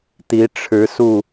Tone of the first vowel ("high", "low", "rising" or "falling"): rising